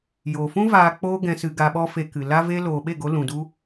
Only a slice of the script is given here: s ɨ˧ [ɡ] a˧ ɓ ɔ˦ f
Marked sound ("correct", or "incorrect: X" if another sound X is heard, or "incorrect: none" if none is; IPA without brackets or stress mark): correct